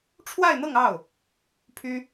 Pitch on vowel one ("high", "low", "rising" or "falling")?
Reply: falling